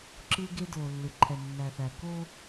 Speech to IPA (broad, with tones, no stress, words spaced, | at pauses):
ǁɯ˦ ɡe˦doː˨lːɯ˨ ǃʰɛ˨nːæ˨θæ˨ ko˦